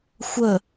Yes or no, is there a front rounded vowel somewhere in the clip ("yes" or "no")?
no